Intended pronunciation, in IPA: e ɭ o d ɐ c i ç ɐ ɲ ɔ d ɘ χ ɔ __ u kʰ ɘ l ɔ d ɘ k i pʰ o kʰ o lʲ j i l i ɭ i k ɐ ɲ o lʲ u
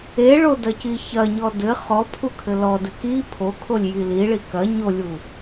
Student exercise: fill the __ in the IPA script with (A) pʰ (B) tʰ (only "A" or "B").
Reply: A